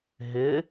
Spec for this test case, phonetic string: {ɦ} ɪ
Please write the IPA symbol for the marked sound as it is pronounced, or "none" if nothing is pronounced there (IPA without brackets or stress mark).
ɦ